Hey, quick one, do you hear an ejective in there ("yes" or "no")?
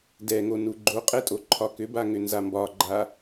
yes